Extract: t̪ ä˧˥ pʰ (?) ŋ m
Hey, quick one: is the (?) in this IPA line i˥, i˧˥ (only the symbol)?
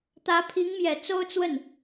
i˧˥